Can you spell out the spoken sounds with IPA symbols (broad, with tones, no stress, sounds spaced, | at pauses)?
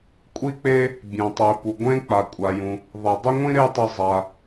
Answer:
kʷʼ i˥ k͡p e˥ | bʲ ẽ˩ tˤ i˩ p u˩ ɡʷ ẽ˥ k͡p a˩ kʷʼ a˩ j ũ˩ | ðˤ i˩ dˤ ʊ˥ ŋʷ ĩ˥ ɾ e˥ tˤ ʊ˧ zˤ a˩